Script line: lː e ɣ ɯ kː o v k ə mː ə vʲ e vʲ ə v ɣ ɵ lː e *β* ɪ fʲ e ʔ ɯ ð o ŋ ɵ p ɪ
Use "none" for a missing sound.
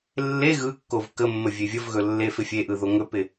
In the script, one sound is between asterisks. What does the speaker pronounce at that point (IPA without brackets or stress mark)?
f